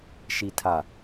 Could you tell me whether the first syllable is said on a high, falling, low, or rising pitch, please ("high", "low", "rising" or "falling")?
low